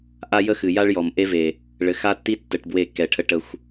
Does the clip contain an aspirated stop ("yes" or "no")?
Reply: yes